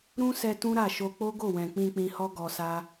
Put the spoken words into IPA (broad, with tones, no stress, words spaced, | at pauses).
ɾũ˦sɛ˧ tũ˦ɾa˦˨ʃo˧ k͡po˦ɡo˦˨wɛ̃˨ k͡pĩ˧k͡pĩ˧hɔ˦ ɡɔ˧sa˦